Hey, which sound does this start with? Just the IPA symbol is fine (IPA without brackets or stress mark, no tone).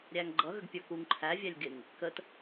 ɾʲ